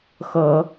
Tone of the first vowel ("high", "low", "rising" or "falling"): rising